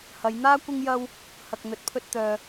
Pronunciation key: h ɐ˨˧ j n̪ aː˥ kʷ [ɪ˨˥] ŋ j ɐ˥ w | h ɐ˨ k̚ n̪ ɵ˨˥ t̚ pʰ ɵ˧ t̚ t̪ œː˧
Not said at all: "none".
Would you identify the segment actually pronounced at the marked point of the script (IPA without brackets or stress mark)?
ɪ˥